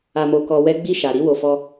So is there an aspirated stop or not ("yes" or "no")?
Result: no